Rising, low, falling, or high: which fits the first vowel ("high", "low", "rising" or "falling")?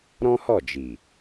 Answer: high